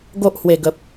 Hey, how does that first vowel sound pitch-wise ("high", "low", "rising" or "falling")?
high